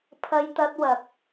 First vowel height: low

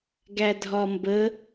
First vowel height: low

